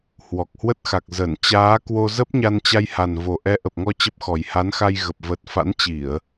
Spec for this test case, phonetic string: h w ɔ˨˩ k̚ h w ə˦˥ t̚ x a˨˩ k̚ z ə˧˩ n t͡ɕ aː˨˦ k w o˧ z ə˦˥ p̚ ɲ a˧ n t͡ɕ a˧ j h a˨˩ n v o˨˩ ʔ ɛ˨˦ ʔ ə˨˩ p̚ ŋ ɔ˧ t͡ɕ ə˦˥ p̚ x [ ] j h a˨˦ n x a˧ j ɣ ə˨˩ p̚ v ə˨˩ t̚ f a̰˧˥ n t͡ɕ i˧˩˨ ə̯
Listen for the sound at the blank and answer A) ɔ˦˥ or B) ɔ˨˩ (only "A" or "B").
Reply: B